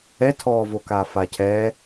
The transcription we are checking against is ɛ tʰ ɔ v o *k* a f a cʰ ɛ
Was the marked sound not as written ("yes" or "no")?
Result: no